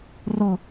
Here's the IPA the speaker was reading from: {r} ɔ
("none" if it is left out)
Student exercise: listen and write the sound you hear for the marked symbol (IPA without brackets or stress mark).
r